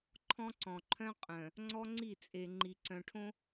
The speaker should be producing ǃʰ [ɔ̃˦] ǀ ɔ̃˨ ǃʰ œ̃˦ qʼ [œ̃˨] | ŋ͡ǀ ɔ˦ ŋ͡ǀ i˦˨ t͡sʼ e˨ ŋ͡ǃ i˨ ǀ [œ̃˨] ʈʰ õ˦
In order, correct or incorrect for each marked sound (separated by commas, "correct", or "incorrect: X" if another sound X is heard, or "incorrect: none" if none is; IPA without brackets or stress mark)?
correct, correct, correct